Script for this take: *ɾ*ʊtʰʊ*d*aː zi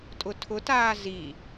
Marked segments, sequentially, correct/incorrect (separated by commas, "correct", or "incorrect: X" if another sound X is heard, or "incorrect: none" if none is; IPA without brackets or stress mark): incorrect: tʼ, incorrect: t